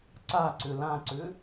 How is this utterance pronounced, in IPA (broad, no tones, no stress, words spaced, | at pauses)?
ǀaǀʏ lãǀʏ